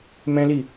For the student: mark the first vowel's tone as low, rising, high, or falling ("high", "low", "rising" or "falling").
high